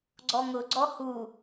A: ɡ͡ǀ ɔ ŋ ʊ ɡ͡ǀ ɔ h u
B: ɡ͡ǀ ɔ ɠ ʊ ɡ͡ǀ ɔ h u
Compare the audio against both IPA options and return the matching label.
A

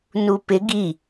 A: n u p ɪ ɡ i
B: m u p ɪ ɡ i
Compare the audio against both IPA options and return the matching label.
A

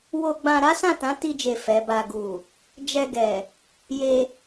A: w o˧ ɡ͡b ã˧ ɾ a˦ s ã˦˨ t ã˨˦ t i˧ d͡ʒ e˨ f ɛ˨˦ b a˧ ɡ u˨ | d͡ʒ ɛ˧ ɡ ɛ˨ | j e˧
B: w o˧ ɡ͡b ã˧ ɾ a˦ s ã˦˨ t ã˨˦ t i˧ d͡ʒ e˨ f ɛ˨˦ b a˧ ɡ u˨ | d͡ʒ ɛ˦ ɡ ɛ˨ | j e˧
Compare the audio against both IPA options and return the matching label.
A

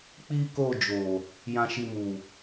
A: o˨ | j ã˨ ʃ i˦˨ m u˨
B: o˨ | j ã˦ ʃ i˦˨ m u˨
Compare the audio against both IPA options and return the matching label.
B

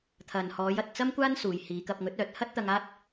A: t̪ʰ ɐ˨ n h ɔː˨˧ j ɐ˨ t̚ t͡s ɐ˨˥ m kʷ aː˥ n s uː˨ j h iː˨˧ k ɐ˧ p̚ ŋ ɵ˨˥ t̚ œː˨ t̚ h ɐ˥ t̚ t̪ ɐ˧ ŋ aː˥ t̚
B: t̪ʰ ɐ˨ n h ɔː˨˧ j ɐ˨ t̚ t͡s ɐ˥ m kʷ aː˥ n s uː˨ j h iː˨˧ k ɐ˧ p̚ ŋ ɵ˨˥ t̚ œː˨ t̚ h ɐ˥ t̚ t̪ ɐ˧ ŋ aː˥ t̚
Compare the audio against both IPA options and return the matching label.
B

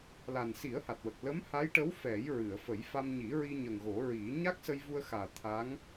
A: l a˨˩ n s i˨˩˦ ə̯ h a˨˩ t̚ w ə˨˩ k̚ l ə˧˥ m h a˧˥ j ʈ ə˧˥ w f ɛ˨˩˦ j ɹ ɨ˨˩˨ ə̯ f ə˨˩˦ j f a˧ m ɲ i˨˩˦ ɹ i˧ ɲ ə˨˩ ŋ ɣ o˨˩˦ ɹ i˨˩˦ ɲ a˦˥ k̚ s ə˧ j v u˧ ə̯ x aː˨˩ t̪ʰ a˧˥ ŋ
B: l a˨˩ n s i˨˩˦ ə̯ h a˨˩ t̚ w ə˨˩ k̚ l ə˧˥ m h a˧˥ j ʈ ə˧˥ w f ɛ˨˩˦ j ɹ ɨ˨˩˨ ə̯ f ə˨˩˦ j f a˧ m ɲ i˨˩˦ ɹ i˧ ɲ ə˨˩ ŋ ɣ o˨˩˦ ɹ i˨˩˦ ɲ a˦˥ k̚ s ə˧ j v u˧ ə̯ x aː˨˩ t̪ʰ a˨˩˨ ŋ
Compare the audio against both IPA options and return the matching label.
A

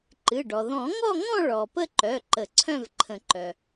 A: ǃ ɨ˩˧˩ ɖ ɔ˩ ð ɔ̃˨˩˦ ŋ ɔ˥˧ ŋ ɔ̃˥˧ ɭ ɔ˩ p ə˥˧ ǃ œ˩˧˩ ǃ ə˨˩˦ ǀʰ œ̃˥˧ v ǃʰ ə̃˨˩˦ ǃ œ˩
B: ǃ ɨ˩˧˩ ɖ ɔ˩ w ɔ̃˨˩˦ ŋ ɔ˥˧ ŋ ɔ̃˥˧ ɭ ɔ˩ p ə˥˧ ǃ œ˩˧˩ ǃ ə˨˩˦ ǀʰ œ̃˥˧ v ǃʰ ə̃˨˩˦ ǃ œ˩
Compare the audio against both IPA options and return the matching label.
A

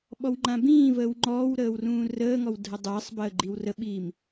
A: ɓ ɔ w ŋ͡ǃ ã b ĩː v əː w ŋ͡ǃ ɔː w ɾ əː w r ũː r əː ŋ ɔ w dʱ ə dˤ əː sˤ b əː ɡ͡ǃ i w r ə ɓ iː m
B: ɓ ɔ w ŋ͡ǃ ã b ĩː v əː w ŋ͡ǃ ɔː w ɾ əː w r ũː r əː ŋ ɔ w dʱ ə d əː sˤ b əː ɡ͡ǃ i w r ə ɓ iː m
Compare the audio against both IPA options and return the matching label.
A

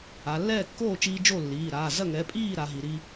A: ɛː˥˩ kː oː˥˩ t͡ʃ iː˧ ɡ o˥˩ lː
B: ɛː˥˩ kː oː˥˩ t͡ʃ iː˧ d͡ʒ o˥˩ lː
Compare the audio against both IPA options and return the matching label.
B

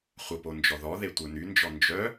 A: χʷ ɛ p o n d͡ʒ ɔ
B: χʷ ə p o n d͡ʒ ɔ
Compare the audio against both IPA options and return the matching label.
B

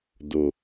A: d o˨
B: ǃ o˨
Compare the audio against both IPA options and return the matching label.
A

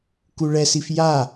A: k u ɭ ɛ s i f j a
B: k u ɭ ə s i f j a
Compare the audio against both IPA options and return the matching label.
A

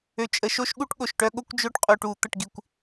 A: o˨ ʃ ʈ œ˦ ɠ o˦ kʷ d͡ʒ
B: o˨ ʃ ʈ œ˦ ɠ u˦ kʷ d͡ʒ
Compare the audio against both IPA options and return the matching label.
A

